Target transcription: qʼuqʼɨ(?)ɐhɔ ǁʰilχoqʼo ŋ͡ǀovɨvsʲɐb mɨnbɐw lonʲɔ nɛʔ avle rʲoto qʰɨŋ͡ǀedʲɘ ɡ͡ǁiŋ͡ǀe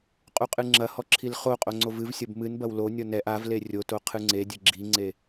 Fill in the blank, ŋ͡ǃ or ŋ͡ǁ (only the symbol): ŋ͡ǁ